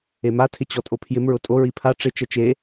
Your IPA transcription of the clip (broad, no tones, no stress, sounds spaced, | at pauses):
e m a tʰ ɪ t͡ɕ ɔ tʼ o pʰ j ɪ m ɹ ʊ tʼ o ɹ i pʰ a ʈ͡ʂ ɪ t͡ʃ ɛ t͡ʃ e